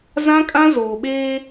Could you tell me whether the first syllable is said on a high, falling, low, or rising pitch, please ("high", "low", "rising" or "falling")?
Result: high